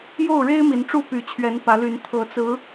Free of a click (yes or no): yes